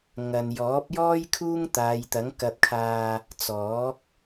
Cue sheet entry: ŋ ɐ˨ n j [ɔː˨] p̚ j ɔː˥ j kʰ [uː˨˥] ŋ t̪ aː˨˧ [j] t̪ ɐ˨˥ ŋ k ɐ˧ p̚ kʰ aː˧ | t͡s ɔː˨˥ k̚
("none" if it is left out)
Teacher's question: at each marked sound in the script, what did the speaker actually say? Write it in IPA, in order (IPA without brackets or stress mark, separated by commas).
ɔː˨˥, uː˥, j